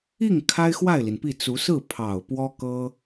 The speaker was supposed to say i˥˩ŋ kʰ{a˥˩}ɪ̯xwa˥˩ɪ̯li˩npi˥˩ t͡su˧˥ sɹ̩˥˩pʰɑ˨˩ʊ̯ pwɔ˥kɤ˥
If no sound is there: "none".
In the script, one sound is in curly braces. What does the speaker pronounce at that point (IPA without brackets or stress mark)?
a˥